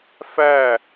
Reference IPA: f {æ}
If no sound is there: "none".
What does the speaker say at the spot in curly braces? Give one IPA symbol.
æ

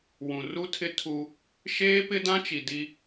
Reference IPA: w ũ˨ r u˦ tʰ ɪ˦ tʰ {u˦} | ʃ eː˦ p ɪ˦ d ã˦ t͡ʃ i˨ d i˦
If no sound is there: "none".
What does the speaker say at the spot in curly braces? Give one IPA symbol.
u˦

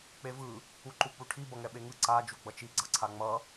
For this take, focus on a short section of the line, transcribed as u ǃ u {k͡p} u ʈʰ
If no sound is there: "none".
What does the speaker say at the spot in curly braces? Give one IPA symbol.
k͡p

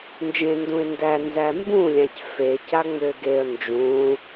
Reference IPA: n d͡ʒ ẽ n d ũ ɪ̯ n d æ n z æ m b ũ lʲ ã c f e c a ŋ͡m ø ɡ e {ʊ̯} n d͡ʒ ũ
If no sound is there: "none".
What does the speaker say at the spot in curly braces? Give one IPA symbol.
ə̯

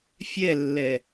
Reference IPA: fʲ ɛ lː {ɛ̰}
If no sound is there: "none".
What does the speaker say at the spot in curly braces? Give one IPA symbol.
ɛ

